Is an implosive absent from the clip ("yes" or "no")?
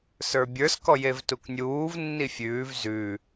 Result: yes